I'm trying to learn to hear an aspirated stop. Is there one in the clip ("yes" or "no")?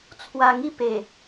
yes